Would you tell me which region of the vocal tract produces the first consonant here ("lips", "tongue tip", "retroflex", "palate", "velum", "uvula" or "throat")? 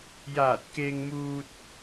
palate